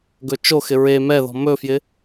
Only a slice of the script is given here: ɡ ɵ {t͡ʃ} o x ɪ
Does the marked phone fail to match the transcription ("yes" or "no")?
no